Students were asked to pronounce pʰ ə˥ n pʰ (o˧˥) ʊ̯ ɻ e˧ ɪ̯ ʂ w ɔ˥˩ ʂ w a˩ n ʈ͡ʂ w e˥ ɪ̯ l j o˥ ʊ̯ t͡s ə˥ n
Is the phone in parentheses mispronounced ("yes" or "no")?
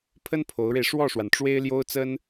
no